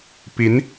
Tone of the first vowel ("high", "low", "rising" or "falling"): rising